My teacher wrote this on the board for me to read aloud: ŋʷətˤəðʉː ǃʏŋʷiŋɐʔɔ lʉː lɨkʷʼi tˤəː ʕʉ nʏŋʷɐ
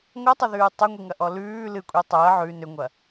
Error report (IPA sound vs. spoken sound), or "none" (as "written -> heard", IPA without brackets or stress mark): ǃ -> tˤ